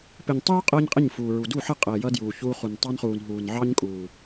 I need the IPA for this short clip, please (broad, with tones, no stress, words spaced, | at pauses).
pɪ˨ɲtˤuː˦ qʼəː˦ɲqʼɪ˦˨ɲfuː˨ɹu˨ du˦˨ħə˦˨qʼəː˨jʌ˧ djuː˨çuː˧χu˨n tˤɑ˦nχuː˨n ɦuː˨nʕɑ˦ɲkʼuː˨